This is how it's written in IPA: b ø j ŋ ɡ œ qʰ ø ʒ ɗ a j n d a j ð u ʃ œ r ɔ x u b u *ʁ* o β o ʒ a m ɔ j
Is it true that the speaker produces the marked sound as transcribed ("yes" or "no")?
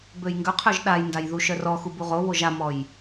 yes